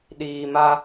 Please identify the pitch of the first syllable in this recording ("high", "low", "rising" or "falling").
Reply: low